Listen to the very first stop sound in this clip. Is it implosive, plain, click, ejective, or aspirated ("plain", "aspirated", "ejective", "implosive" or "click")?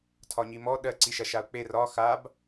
aspirated